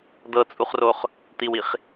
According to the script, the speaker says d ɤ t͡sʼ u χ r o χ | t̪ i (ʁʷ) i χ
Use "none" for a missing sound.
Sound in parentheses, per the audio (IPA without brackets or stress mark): w